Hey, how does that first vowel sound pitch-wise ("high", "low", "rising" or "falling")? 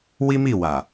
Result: high